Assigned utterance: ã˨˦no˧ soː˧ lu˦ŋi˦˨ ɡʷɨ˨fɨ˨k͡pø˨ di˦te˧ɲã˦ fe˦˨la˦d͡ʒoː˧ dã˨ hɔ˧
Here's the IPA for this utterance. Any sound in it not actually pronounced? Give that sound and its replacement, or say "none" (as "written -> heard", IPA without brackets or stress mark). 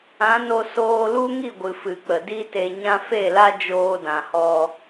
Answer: ø˨ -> ə˨